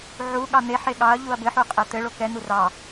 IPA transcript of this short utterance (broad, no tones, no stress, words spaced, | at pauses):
ʕu ɠɑn̪eħe ɠɑɐ̯ʎuɐ̯ bɘħu qʼɛt̪ɘɭo kɛn̪u rɑ